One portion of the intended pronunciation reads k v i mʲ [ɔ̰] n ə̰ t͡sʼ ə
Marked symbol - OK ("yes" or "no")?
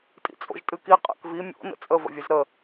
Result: no